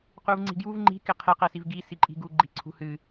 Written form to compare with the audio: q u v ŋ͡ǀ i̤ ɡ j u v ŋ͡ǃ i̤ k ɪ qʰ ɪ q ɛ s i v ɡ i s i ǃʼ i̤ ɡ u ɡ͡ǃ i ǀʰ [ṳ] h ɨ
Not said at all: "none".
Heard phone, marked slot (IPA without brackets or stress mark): ṳ